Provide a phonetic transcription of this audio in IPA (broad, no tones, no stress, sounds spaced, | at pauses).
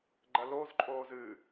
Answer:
ɡ͡ǃ ɐ l o z ǃʼ oː z ɨ